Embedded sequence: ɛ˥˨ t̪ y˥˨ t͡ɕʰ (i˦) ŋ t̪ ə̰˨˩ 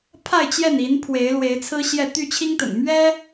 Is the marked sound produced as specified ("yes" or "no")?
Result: yes